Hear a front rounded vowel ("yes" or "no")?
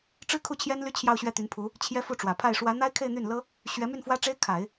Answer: yes